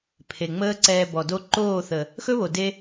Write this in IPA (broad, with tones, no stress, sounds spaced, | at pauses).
pʰ e˨ ŋ͡m əː˦ ǀ ɛː˧ b ɔ˨ d o˧ ǃ oː˦˨ θ ə˨ | x ɵ˦ β o˨ d e˧